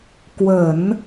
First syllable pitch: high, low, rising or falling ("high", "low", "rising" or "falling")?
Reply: low